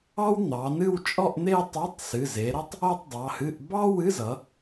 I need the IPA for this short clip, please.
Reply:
ɑ˥ w n̪ ɑ˩˧ n ɨ˥˧ w t͡ʃʼ ɔ˥˧ ʔ n̪ e˥˧ tˤ o˧˥˧ tˤ s ɨ˩˧˩ z e˩˧ ɾ ʌ˥ tˤ | o˥˧ tˤ dˤ ɑ˩˧˩ h ɨ˧˥˧ ʔ b ɑ˥ w ɨ˧˥˧ z ʌ˩˧

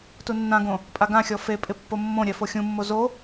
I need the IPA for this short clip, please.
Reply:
t u nː ã ɡ õ | pʼ a ɡ ã xʲ ɔ f e pʼ ɪ pː o mː õ ɾʲ ɛ f o xʲ ũ mː o z o

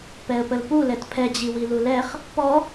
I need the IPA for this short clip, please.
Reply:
p ɛ ə̯ p ə l p u l ɛ t pʰ ɛ d͡ʑ i w i l u l ɛ χ | p ɔ

